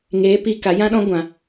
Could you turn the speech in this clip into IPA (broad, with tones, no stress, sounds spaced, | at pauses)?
ŋ eː˨˦ p i˧ k a˨˦ j ã˦ ɗ ɔ̃˦ ɡʷ ã˨